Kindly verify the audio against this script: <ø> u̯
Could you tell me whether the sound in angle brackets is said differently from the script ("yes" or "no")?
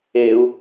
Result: yes